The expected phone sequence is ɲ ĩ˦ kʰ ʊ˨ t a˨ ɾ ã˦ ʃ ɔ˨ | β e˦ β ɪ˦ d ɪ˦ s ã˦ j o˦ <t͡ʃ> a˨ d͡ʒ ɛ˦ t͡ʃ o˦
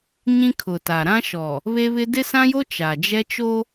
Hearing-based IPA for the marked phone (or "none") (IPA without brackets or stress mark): t͡ʃ